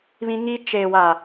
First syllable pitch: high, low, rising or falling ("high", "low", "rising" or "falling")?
high